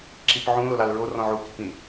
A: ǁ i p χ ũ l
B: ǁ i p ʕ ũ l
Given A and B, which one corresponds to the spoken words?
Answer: B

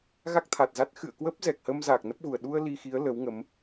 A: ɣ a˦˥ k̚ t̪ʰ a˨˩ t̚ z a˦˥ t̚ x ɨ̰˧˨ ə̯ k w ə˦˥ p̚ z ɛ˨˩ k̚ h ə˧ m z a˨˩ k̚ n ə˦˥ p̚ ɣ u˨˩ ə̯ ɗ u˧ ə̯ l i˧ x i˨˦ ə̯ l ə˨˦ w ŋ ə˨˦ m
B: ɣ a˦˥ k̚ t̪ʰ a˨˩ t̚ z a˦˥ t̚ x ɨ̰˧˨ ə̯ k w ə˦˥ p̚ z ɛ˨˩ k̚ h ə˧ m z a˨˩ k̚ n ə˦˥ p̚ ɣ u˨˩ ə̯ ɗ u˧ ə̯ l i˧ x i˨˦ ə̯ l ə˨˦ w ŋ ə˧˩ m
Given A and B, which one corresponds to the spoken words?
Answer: A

